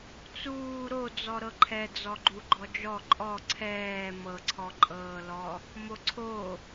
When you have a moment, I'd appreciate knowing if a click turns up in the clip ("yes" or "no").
yes